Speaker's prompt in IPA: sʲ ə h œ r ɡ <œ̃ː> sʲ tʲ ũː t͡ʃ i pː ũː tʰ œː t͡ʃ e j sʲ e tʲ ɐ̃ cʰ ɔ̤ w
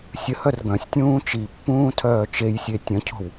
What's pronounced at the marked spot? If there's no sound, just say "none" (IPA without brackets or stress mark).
œ̃